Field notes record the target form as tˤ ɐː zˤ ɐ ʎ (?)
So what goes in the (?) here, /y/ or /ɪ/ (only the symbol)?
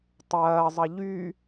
y